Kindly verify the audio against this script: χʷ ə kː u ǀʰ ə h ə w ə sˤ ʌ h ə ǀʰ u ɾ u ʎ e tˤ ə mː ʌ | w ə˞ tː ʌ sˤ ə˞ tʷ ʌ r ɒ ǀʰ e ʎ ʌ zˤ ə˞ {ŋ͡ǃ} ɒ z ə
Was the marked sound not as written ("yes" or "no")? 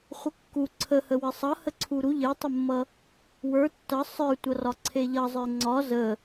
yes